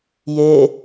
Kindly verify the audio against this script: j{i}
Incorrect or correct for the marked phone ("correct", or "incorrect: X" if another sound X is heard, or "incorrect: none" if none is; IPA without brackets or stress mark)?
incorrect: e